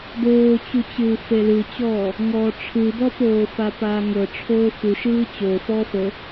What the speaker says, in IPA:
doːt͡ɕut͡ɕɯː felɯt͡ɕɔː | ŋɔːʈ͡ʂʰɯbɔpoː fapaːŋɤ ʈ͡ʂʰoːfuʃɯː t͡ɕo fɔːfɤ

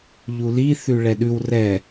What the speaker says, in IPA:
ʎuli θʉɭɛɗʉw rɛ

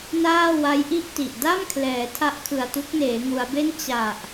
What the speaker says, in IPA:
naː˥˩wa˦˥jʔi˥˩ʔti˨˩ʔ da˥˩mkʰlɛː˩˦ tʰa˦˥ʔkʰɯ˨˩a̯ tu˦˥k̚neː˩˦ŋu˩˦a̯be˥˩n t͡ɕa˨˩ʔ

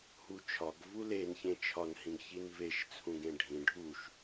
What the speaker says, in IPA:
hut͡ʃʰɒɡ vulen çẽt͡ʃʰɒn hĩɡçinveʃ t͡sʰũɡẽɖʱĩ ɖʱuʃ

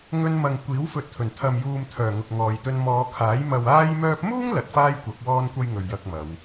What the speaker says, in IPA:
ŋɵ˧nmɐ˨ŋ kʷiː˨˥wfɵ˨t̚ t̪ʰɵ˨˩n t̪ʰɐ˨mjuː˨mt̪ʰœː˨˩ ŋʊ˨k̚ŋɔː˨jt̪ɵ˧n mɔː˨˧kʰaː˨˥j mɐ˨waː˧jmœː˧p̚muː˥ŋ lɐ˨t̚faː˥jkʷɐ˨˥k̚ wɔː˥nkʷɐ˥j ŋɵ˨ɥjɐ˧k̚mɐ˨˧w

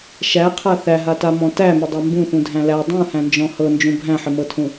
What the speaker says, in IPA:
ʃæqʰa θæɦatamɔ̃ tæmɘdˤa mbũθũdʱæ̃ læ dˤũhæ̃nd͡ʒɔ̃ hɤnd͡ʒũ bʱæ̃ħɘmɤtʰũ

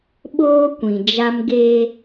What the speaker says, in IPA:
ɓoː˦kʷĩ˨d͡ʒa˦m ɡe˦

